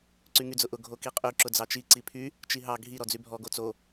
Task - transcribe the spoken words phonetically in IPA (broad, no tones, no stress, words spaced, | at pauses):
ǀyŋyd͡zʊʔʊ ɡʱokiqʼy ǁʊd͡zɑt͡ʃi ǀipʰy | t͡ʃiɦɑ ɡʱi ɾɔd͡zybʱɔ ɡot͡so